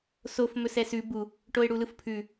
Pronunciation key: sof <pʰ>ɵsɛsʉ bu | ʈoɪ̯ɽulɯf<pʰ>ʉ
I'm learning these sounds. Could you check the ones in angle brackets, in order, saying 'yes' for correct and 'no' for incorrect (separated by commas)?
no, yes